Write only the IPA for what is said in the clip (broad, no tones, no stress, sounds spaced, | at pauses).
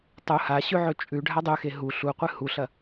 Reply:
tˤ u h a ɕ ʉ ʕ ɵ t͡ʃʼ ʉ ɖʱ a dˤ ʉ x e ɦ u ɬ u qʷ ɨ h u ɬ ɐ